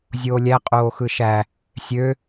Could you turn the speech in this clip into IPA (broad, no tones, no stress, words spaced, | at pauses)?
zʲoːlʲæ qʼoːxɯʃæ | sʲø